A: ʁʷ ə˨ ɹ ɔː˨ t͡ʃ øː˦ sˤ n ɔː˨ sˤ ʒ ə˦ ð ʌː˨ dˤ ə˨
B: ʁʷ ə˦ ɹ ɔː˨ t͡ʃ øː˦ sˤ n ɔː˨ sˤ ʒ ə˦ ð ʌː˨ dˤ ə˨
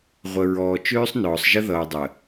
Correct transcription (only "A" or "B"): A